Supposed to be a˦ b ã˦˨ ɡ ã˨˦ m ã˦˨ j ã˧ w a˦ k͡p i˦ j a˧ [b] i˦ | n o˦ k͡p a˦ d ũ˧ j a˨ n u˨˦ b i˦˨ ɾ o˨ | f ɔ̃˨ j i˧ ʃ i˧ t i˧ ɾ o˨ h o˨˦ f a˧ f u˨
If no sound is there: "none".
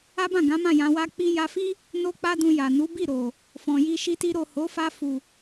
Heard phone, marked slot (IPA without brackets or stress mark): f